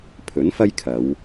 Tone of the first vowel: rising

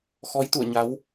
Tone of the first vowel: rising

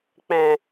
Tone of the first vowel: low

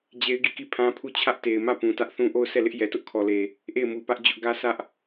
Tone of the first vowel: high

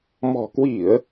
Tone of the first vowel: low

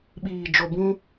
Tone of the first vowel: low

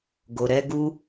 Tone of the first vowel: low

